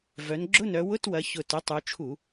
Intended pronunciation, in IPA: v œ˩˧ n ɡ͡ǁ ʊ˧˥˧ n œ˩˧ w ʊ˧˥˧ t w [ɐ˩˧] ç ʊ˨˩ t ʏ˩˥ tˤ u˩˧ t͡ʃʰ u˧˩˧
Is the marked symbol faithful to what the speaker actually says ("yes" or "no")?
yes